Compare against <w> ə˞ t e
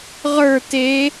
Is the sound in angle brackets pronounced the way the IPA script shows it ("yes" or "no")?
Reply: no